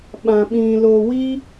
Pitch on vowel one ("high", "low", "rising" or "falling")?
low